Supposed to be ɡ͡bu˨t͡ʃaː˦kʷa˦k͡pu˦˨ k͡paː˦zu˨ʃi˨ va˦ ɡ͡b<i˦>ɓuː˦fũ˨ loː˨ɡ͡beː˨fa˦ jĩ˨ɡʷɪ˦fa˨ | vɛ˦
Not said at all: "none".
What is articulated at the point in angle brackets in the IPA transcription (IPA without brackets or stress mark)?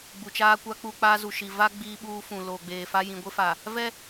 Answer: iː˦